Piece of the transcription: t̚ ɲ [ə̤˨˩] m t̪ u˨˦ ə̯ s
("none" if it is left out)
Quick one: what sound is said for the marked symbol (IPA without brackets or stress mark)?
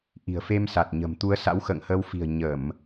ə̤˨˩